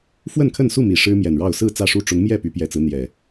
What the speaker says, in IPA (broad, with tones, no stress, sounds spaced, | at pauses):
f w ə˥˨ n kʰ ə˥˨ n s u˥˨ m i˨˩ ʂ ɻ̩˦ m j ɛ˨˩ n ɻ ɑ˥˨ ʊ̯ s ɹ̩˥˨ t͡s ä˥˨ ʂ u˥˨ ʈ͡ʂ ʊ˨˦ ŋ m j ɛ˥˨ p y˨˦ p j ɛ˨˩ t͡s ɹ̩˦ n̪ j ɛ˨˩